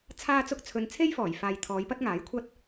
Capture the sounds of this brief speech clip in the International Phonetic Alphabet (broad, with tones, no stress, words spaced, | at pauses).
t͡sʰaː˥t͡sʊ˥k̚t͡sʰɵ˧n t͡sʰe˥jfɔː˨˩jfaː˨j t̪ʰɔː˨˧jpɐ˥t̚ŋaː˨˥jkʷʰɐ˥t̚